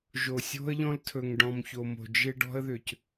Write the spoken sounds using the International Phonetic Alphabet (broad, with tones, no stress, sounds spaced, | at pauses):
ʒ o˧ sʲ o̤˥ ə̯ ʎ ɔ̃˥ l tʰ ɵ˧ ŋ ɖ ɔ̃˧ m ç o˧ m o̤˧ d͡ʒ ɪ˥ ɖ ɔ̤˥ ə̯ ð ʏ˧ c